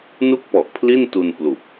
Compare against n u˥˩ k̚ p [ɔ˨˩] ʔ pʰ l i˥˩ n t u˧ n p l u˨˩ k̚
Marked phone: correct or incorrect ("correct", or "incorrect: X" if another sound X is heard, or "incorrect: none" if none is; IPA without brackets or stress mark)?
correct